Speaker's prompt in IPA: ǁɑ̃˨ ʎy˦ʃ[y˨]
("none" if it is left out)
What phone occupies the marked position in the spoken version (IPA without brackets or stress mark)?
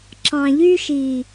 i˨